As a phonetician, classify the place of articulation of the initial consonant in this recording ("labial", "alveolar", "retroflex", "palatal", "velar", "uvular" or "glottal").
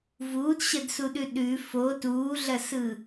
labial